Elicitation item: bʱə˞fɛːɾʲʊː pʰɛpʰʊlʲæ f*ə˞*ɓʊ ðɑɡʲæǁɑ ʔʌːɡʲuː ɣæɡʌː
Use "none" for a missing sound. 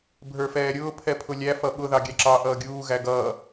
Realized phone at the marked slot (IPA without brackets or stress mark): ʌ